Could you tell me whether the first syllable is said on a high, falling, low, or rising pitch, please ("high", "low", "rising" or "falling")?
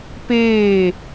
falling